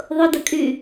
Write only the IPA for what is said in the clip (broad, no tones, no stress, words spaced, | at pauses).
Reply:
ðˤʊdɐkʼyː